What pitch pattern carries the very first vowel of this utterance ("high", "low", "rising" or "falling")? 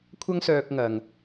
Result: high